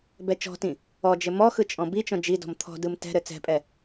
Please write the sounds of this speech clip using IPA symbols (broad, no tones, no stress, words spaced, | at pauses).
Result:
bɛt͡ʃɔ̤tĩ | ɔ d͡ʒɘmɔxɯ t͡ʃʼɔ̃bit͡ʃɔ̃ d͡ʒidɔ̤m t̪ʰɔ̤dɯm tɛ̤ɾɘ t͡sɛ̤pʼɛ